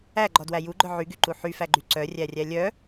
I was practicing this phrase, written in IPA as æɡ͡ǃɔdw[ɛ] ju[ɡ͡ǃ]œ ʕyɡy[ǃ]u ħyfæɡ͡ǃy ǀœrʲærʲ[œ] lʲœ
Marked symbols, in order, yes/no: no, yes, yes, no

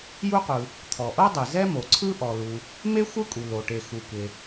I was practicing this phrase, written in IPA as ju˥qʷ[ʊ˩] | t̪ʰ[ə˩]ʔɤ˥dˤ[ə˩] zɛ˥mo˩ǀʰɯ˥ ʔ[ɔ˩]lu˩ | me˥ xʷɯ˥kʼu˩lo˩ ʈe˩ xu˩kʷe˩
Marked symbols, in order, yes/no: no, no, no, yes

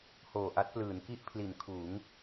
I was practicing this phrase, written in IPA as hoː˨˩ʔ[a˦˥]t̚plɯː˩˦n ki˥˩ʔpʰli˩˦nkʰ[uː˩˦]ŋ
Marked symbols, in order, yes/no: yes, yes

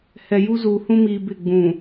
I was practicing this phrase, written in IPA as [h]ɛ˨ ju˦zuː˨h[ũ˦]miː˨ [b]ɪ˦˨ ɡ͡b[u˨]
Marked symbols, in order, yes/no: yes, yes, yes, no

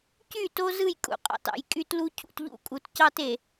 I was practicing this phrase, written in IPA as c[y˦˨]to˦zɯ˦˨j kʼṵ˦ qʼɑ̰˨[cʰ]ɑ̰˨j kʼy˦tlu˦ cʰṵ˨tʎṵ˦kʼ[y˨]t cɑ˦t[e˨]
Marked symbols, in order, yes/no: yes, no, no, yes

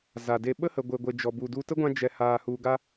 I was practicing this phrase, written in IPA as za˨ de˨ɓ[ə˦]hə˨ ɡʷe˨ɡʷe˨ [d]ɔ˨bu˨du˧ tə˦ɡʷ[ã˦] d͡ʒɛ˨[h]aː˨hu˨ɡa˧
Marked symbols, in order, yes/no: yes, no, no, yes

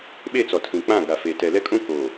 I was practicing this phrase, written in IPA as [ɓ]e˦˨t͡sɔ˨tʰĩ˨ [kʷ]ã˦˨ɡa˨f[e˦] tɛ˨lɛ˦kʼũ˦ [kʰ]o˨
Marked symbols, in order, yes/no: yes, no, no, no

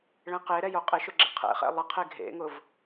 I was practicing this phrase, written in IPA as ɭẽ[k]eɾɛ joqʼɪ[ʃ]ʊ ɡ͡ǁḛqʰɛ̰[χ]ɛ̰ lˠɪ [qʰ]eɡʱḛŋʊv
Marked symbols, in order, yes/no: no, yes, yes, yes

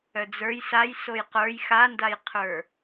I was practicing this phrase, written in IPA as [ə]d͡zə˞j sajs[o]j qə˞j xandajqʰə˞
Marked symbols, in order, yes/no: no, yes

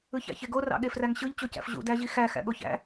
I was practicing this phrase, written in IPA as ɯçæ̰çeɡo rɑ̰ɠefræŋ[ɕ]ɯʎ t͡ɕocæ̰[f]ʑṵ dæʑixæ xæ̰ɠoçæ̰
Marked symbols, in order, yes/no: yes, yes

